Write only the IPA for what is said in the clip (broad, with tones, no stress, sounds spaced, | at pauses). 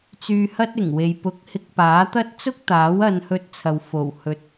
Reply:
t͡s yː˧ h ɐ˥ t̚ ɪ˨˩ ŋ w e˨ j p ʊ˨˥ k̚ h ɪ˧ k̚ p aː˨˥ t̪ ɐ˥ t̚ t͡s ʊ˥ k̚ t̪ aː˨˥ w ɐ˧ n h ɵ˧ t̚ t͡sʰ ɐ˨ w f o˨˩ w h ɵ˨ t̚